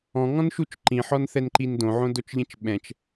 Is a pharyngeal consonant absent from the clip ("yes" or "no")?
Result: no